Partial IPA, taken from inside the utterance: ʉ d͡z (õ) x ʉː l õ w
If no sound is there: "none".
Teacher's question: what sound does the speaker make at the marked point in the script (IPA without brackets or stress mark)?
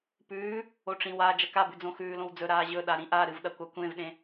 õ